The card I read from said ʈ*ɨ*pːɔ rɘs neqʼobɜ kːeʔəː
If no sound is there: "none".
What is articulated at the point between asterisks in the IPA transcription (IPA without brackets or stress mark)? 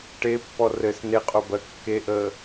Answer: e